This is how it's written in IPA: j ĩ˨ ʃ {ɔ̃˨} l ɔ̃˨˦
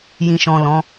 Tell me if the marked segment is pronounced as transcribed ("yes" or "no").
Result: yes